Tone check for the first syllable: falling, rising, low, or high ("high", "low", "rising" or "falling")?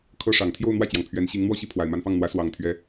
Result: high